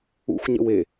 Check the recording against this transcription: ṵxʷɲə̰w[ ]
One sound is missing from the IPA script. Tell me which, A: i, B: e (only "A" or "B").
B